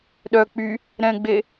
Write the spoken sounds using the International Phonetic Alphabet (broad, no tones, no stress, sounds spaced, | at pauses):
ɗ œ k͡p y | ɾ ɛ̃ ɡ͡b e